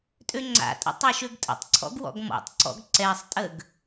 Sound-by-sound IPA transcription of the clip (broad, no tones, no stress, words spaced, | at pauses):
tʼøŋ͡ǀa̰tʼə̰ tˤaʃøɡtʼə̰tˤǀʰɔ̰ɡ wɔ̰ɡmɔ̰tˤǀɔ̰ɡ ǀɛsˤtʼəɡ